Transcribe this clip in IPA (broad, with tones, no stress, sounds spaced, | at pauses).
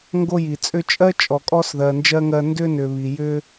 ŋ ɡ o˦ j i˩ t͡sʼ ʏ˦ t͡ʃʼ ɜ˥ t͡ʃʼ ɔ˨ kʼ ɔ˥ s ð ɜ˨ n d͡ʒ ɜ˥ ŋ ɜ˦ n d ʏ˥ n ʏ˨ β i˩ j ʏ˦